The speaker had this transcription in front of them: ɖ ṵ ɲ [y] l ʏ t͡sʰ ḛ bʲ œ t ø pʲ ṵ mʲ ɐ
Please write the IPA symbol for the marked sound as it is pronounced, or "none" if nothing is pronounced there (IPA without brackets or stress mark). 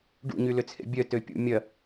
y